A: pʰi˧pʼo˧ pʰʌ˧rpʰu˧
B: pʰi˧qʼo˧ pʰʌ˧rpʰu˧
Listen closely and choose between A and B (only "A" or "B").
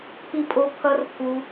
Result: A